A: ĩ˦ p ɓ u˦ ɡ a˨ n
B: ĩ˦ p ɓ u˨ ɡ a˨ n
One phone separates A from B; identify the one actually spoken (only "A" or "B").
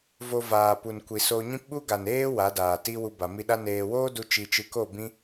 A